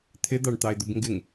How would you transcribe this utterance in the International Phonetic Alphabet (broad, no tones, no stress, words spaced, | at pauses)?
t̪ʰɪd̪ɑɳt̪ɑɪ̯d̪ʊb ŋɡɪŋ